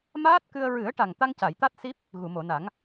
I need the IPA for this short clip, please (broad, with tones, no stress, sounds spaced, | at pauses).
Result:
m aː˦˥ t̚ k ɨ˧ ə̯ ɹ ɨ˨˩˦ ə̯ ʈ a˨˩ ŋ t̪ a˧ ŋ c a˨˩˨ j t̪ a˦˥ t̚ s i˦˥ p̚ | ɣ u˨˩˨ m o˨˩˨ n a˨˩˦ ŋ